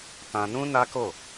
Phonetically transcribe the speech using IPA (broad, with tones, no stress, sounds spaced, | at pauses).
t ã˧ n ũ˦ n a˦ k o˦˨